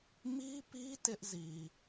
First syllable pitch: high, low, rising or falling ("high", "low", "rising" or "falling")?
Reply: high